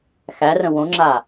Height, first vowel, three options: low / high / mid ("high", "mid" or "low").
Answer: low